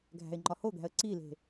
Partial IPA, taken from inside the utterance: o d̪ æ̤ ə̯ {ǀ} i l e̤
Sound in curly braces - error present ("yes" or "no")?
no